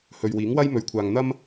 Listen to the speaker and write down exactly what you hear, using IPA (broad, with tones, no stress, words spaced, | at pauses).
hɵ˨ɥwiː˨˥ŋwɐ˥j mɵ˨˧ɥkʷʰaː˨ŋ n̪ɐ˥m